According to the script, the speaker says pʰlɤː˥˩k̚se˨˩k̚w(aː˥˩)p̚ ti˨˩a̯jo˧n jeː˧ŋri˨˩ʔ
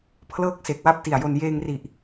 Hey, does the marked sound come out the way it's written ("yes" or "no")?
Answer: no